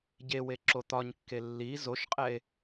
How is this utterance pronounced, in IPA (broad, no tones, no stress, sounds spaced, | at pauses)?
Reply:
ɟ e w e ǁ o t̪ ɒ ɲ kː e lː i z o ʃ qʼ ɛ e̯